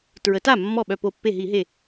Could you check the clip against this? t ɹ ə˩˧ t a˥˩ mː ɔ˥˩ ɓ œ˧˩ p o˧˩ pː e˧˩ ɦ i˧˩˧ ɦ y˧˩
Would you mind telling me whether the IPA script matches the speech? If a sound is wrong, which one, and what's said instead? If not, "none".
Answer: y˧˩ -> e˧˩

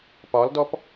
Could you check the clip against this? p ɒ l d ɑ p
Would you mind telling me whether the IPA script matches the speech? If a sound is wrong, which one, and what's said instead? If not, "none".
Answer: ɑ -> ɔ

